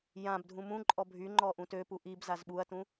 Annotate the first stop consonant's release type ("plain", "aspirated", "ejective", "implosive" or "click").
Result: plain